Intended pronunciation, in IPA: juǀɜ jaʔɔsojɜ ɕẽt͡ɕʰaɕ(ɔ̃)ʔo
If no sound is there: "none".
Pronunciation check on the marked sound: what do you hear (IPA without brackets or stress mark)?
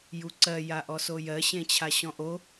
ɔ̃